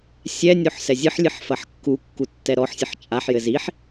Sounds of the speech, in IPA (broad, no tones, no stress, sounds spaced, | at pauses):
sʲ ɛ nʲ o ħ s ɛ zʲ ɨ ħ lʲ ɨ ħ f ɐ ħ kː u kː u tː ɛ ɾ ɔ ħ sʲ ɨ ħ t͡ʃʼ a ħ j ɘ z i ħ